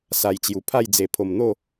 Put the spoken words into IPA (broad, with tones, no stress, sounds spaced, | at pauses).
s a˨˩ j t͡ɕ j u˨˩ pʰ a˥˧ j d͡z e˨˩ pʰ o˨˩ m n̪ o˥˧